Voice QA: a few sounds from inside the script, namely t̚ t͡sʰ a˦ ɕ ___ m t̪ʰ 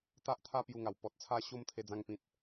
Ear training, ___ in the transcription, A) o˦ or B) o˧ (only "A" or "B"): A